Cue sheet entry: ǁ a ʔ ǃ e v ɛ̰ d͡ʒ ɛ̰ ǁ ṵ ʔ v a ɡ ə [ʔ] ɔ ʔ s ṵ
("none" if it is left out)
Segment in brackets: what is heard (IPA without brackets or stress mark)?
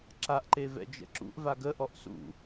ʔ